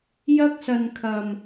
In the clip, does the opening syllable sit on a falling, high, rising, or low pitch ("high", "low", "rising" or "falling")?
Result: high